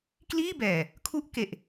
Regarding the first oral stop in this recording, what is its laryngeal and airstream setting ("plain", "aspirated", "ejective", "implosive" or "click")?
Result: plain